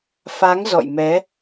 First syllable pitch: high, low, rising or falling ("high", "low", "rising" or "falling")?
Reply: rising